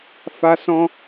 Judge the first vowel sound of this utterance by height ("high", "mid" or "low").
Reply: low